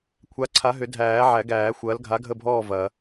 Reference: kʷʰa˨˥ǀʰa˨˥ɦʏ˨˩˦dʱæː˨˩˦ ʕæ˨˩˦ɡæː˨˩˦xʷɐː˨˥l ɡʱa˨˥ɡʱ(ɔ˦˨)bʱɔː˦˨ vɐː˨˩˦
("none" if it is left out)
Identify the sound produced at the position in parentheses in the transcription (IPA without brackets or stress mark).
ə˦˨